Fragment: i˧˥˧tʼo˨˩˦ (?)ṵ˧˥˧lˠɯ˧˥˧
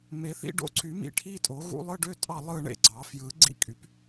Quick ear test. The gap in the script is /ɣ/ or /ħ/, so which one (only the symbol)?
ɣ